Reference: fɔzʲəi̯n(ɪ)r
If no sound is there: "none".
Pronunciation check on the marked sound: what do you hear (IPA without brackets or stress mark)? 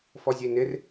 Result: ɪ